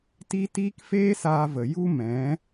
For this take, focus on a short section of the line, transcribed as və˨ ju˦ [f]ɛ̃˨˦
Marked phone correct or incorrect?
incorrect